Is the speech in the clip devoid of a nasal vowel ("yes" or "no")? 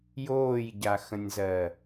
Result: no